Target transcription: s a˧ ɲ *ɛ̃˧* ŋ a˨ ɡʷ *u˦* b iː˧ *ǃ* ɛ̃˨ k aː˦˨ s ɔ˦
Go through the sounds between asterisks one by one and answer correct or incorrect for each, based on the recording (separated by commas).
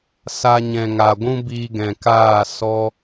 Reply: incorrect, incorrect, incorrect